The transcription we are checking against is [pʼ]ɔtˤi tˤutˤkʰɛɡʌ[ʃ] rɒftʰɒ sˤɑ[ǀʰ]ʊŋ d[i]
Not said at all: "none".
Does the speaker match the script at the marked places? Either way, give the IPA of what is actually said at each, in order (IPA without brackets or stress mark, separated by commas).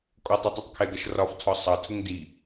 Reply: kʼ, ʃ, tʰ, i